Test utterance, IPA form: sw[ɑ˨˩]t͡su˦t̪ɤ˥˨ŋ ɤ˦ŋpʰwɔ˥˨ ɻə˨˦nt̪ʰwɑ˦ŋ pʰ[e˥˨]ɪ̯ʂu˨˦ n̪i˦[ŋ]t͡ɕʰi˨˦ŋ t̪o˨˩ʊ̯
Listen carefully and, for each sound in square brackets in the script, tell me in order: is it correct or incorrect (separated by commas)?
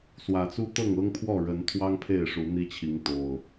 incorrect, correct, incorrect